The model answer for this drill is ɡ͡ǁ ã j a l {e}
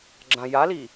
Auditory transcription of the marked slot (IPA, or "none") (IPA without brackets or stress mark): i